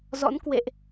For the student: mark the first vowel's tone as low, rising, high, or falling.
rising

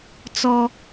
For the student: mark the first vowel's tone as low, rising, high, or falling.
high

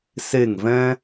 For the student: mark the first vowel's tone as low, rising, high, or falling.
falling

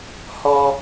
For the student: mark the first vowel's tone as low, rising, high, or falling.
high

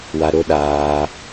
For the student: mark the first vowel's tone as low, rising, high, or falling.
high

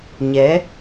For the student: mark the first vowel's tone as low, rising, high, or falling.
rising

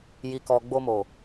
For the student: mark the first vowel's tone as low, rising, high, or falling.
low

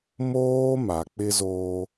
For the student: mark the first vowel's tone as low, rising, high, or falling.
high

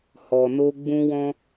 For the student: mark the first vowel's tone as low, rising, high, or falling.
low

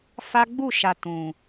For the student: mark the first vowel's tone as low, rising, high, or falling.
high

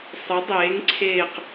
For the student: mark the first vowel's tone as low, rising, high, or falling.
rising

